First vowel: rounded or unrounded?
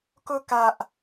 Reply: rounded